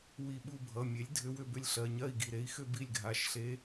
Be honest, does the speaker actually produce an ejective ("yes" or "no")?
no